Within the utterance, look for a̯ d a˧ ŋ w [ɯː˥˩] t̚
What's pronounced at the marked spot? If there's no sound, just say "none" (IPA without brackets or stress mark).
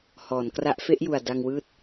ɯː˥˩